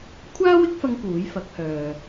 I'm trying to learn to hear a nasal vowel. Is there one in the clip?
no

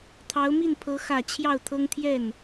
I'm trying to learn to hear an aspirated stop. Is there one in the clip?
yes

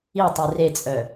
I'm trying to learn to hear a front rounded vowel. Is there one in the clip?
yes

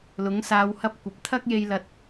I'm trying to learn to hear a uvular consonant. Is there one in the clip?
no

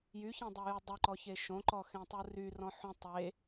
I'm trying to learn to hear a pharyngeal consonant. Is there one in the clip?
yes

